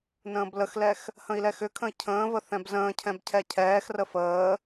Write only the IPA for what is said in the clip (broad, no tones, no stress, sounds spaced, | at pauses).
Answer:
n ə̃ː b l ə x l ɛ x | h ə̃ i̯ l ɛ x ʏ kʰ ə̃ i̯ cʰ ə̃ː v ə θ ɛ̃ b z ə̃ː cʰ ɛ̃ b cʰ ɛ cʰ ɛː x r ə f əː